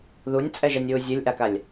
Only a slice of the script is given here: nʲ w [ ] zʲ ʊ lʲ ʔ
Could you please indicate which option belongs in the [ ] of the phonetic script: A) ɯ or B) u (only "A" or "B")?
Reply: B